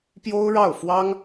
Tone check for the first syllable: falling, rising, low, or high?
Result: high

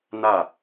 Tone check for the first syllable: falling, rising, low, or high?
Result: falling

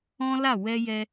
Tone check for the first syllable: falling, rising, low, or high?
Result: high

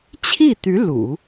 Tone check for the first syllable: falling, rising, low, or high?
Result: falling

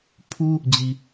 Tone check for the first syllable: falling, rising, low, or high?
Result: high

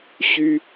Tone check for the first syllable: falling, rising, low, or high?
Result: high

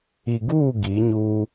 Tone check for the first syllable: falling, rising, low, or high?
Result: low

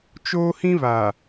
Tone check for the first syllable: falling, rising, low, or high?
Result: high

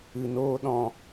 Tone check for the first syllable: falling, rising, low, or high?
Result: low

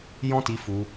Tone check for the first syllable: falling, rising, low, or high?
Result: high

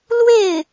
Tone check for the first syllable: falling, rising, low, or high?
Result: falling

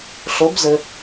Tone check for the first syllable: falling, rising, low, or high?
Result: rising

